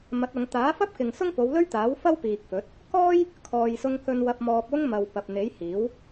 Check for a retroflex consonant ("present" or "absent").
absent